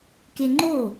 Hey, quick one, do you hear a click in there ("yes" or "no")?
yes